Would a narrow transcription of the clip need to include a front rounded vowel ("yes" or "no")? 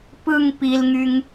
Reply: yes